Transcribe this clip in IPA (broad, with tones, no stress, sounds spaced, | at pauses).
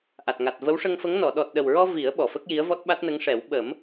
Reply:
ʔ a˨˩ t̚ ŋ a˨˩ t̚ v ə˧˥ w ʂ ə˧ ŋ f ə˧˥ ŋ n ɔ˨˩˨ ɗ ɔ˨˩ t̚ ɗ ə˨˩ w ɹ ɔ˧ v i˨˩˦ ə̯ ɓ ɔ˨˩ f ə˦˥ k̚ j i˧˥ ə̯ v ɔ˦˥ t̚ ɓ a˦˥ t̚ n ə˧˥ ŋ ʂ ɛ˨˩˦ w ɓ ə˨˩˦ m